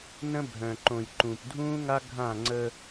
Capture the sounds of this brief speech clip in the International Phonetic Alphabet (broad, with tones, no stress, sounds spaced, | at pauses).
n ə̃˦ bʱ œ̃˨ ǃ õː˨ j ǃ ũː˨ p dʱ ũː˦ ŋ a˦ ɡʱ ã˦˨ ŋ͡ǀ ə˦